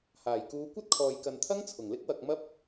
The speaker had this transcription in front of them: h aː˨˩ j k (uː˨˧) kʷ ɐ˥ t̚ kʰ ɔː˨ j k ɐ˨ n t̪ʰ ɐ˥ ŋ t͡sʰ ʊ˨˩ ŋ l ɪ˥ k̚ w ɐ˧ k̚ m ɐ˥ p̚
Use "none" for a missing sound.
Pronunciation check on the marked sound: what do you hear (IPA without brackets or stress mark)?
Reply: uː˨˧